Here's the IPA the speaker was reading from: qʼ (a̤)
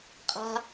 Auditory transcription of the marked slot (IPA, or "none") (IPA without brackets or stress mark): a̤